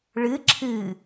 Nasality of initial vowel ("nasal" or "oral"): oral